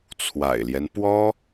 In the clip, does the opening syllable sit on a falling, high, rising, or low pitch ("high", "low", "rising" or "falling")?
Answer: low